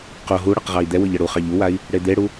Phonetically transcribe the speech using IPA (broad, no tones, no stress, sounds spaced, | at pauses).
q o ɦ u ɽ ʌ q ʁ ɑ i̯ d̪ ɛ w ɤ ʎ ʌ ɽ u χ ɑ ʎ u w a i̯ | ɽ e d̪ e ɽ u